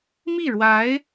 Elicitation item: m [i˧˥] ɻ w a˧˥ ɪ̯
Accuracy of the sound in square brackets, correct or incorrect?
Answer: incorrect